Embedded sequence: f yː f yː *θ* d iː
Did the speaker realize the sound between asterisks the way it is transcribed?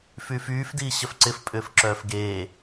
no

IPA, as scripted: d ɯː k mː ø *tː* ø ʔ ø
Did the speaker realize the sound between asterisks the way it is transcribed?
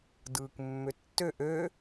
yes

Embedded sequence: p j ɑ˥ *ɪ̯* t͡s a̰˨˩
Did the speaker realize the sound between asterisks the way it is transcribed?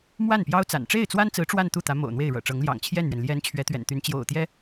no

